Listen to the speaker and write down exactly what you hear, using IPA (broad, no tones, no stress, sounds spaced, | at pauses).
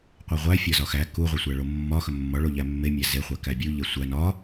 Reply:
qʷ e ʁʷ æ fʲ ɒ z ɒ x æ k u ʁʷ e sʷ æ ɭ o mː ɒ x ɵ mː ɒ ɭ o ʎ æ mː e mʲ æ z e χʷ æ k æ bʲ u ʎ e sʷ æ n ɒ